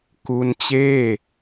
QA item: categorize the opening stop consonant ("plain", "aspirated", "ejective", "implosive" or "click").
plain